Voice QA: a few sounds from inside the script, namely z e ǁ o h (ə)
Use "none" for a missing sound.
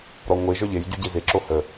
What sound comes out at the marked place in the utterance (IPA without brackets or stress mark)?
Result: ə